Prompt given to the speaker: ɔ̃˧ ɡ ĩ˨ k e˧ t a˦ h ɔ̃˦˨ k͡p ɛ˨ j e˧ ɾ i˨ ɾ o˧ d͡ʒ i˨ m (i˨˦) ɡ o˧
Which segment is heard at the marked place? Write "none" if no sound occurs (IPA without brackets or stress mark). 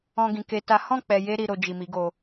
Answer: i˨˦